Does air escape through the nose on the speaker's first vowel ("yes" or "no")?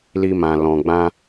no